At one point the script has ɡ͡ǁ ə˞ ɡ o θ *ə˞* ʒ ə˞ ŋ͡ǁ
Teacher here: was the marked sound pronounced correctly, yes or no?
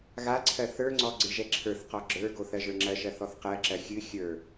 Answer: no